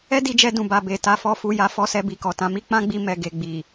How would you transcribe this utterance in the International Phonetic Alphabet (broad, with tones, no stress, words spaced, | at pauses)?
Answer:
ɛ˦di˧d͡ʒɛ˧dũ˨ ba˨be˨ ta˨fɔ˨fu˨ ja˨˦fɔ˧sɛ˧ bi˧kɔ˨ tã˧mi˦ k͡pã˦ ɡ͡bi˧ mɛ˨ɡe˨ ɡ͡bi˨